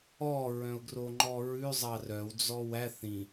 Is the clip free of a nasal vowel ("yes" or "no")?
no